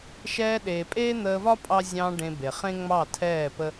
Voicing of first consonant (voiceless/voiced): voiceless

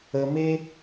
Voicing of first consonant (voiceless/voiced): voiced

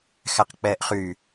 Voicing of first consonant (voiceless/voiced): voiceless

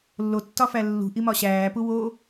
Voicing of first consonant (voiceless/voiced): voiced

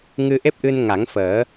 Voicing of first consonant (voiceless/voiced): voiced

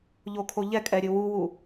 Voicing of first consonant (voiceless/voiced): voiced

